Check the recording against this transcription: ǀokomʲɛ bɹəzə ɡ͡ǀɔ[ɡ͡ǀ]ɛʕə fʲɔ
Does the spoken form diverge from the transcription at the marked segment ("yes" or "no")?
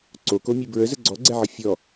no